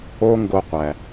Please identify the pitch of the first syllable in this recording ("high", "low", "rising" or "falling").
high